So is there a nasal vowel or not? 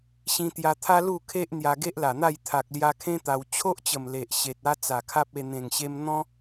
yes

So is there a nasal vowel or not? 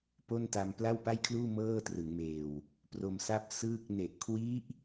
no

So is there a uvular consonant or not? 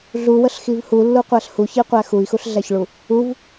yes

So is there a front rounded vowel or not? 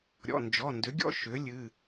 yes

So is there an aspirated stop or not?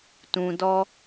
no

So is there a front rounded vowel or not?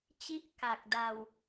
no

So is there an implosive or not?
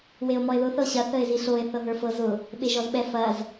yes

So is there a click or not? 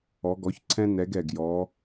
yes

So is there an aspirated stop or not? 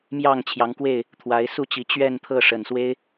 yes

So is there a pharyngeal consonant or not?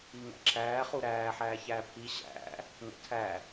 yes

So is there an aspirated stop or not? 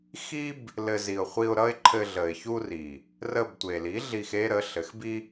yes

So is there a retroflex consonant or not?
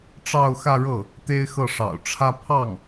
yes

